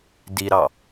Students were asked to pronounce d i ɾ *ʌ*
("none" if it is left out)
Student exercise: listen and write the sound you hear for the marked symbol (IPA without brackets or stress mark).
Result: ɑ